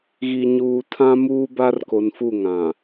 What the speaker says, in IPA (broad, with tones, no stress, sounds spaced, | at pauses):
ɣ i˨ ɲ uː˨ tʰ ã˦ m uː˦ b a˦ r k o˨ n f u˦˨ ŋ ã˨